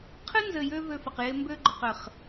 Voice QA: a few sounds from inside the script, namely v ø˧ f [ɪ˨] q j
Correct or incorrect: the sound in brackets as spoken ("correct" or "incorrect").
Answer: correct